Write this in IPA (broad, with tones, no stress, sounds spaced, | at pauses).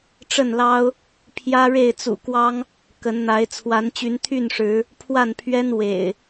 ʈ͡ʂ ə˥˨ n l ɑ˦ ʊ̯ | pʰ j ä˦ ɻ e˥˨ ɪ̯ t͡s ṵ˨˩ k w ɑ˦ ŋ | k ə˨˦ n n̪ a˨˦ ɪ̯ t͡sʰ w a˨˦ n t͡ɕ y˨˦ n t̪ʰ y˥˨ n ʂ ɻ̩˨˦ | pʰ w a˥˨ n pʰ ɥ ɛ˦ n w ḛ˨˩ ɪ̯